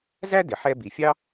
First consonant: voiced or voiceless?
voiced